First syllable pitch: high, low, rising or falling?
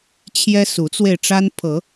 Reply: high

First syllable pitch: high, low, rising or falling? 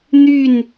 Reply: falling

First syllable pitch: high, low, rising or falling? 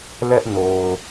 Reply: high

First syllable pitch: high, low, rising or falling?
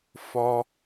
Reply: high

